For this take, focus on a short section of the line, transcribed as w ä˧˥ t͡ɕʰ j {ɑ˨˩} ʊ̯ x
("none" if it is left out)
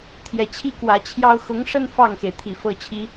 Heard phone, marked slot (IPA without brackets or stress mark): ɑ˥